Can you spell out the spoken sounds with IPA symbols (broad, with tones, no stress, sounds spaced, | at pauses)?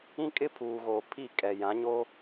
ĩ˦ kʼ ɪ˦ pʰ uː˨ ɣ oː˨ pʰ i˦˨ kʼ ɛ˨ j ã˨˦ ɲ o˦